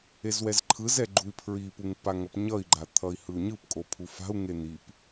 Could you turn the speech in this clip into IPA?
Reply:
e z w ɛ z ǃʰ ɯ z ɛ ɡ͡ǃ u i̯ pʰ ɹ i p u ŋ p a ŋ ʌ p ɲ ʌ i̯ ɡ͡ǃ a t̪ʰ ʌ i̯ h ɯ u̯ ɲ ɯ p kʼ o pʰ u f a̤ u̯ ŋ e n̪ i p

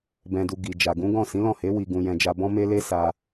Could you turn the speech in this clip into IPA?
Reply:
b ɛ̃˧ d u˧ ɡ i˨ d͡ʒ a˨ ɡ ũ˨˦ ɡ ɔ̃˦˨ s ĩ˨˦ l ɔ̃˦˨ h e˨˦ w i˧ ɡ ũ˧ j ɛ̃˧ d͡ʒ a˧ b ɔ̃˦ m e˦ l e˦ s a˧

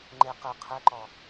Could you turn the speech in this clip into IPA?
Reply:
ŋ͡ǃ e q ɘ qʰ ɛ ǃ ɔ

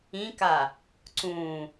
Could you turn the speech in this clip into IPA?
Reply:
ĩ k a | ǀ ũ

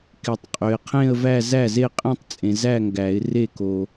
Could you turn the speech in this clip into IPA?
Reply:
k ɪ˨˩˦ tˤ qʼ ø˨ ɪ̯ qʰ ẽ˥˧ ə̯ v æ˥˧ z æ˥˩ z e˥˩ qʼ ẽ˥˧ tˤ t͡sʼ ẽ˨ z æ˥˧ ŋ ɡ æ˨˩˦ ɪ̯ r e˥˩ k o˨

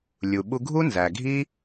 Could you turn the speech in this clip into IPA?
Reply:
lʲ u˨ ɓ u˧ ɡʱ u˦ n z æ˨ ɡʱ i˦

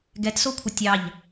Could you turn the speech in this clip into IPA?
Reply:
ɡ ɛ t s o kʷʰ ə tʲ ɑ ʎ

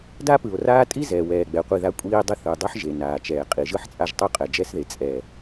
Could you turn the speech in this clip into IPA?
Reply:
d a˦ p ɯ˨ o̯ r aː˦ tʼ i˦ z ɛː˨ w ɛː˨ ɡ͡b ɛ˨ qʷ i˦˨ ð a˦ kʷʼ iː˦ dˤ i˦ θ ɯ˨ dˤ u˦ ħ ʒ e˨ n aː˨ t͡ʃ ɛː˨ qʼ i˨ ʒ ɯ˦ ħ t͡sʼ a˦˨ ʒ tˤ u˦ qʼ ɛ˨ d͡ʒ ɛ˦ s ð e˨ t͡sʼ ɛ˨

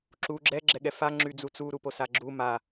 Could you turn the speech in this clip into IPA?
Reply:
ǁ u ɡ͡ǁ ɛ ɡ͡ǁ ɛ ɠ ɛ f a ŋ͡ǁ y d͡z u t͡s u ɾ u p o s a ɡ͡ǁ u m a

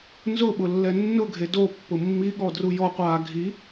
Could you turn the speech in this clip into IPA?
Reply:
n z ʊ ɓ ʊ lː ɛ nː ʊ ɡʱ e d o pː ʊ mː i ɠ ɔ d r u j ɔ qʷ aː ɡʱ i

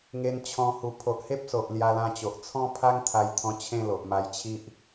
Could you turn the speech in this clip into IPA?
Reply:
ŋ e˧ n t͡ɕʰ ɔ̃˧ h u˨˩ pʰ o˨ ʔ h e˦ p̚ s o˨ ʔ l j a˧ l ã˧ t͡ɕ o˨ ʔ t͡sʰ ɔ̃˦ pʰ a˦ ŋ t̪ʰ a˧ j t̪ʰ ɔ̃˧ t͡ɕʰ ẽ˥˧ l o˨ ʔ m a˧ j t͡ɕʰ i˦ ʔ

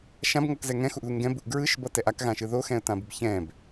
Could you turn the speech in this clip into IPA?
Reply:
ʃ ã b ŋ ʌ k z ɛ ŋ ɛ̃ x u ʔ ð u ŋ ɡ ɛ̃ b u ʔ ɡ ɹ ɯ ʃ b ʌ t ɛ ʔ a k ɣ ã ʃ ɯ ð o x ɛ̃ ə̯ t ã b ɯ b ç ɛ̃ b

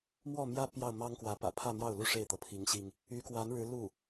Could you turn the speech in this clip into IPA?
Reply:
m w ɔ˥˩ m j ä˥ p j ɑ˥˩ ʊ̯ m ɑ˥ ŋ k w ä˧˥ p ä̰˨˩ pʰ ä˥˧ m j ɑ˥˩ ʊ̯ l u˥ ʂ e˥˩ ɪ̯ t̪ ɤ˩ pʰ i˧˥ ŋ ɕ i˧ ŋ | y˧˥ k w a˧˥ n ɻ ɻ̩˧˥ l u˥˩

